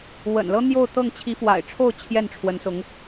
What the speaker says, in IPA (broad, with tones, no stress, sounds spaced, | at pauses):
w ə̰˨˩ n l ɤ˥ n̪ j o˥˧ ʊ̯ t̪ ɤ˥˩ ŋ t͡ɕʰ i˧˥ f w a̰˨˩ ɪ̯ ʈ͡ʂʰ o˥˧ ʊ̯ t͡ɕʰ j ɛ˥˩ n ʈ͡ʂʰ w ə˧˥ n s ʊ˧˥ ŋ